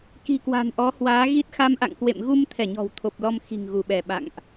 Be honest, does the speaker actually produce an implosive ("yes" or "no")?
yes